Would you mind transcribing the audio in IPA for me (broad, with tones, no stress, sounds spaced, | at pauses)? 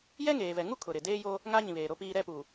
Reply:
j ɛ˦ ŋ eː˨ v ɛ˨ ŋ u˦ kʰ ʊ˨ ɾ ɪ˨ d eː˦ j o˦ | ŋ a˦ ɲ ĩ˨ β eː˨ ɾ o˦ p iː˦ ɾ ɛ˦˨ p u˨